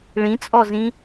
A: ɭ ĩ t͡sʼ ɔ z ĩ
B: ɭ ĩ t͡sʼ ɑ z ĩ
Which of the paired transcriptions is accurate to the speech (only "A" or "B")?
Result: A